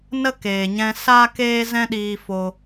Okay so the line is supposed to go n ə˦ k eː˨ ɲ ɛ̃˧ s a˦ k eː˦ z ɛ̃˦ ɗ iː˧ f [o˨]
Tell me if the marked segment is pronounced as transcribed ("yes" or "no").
no